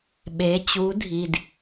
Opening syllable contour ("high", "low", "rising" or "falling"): rising